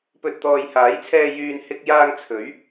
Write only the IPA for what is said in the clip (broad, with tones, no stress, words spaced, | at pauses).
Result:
pɵ˧t̚ t̪ɔː˨jhaː˨˥jt͡sʰɛː˧ jyː˨nhɪ˧k̚jaː˧ŋ t͡sʰɵ˨˥ɥ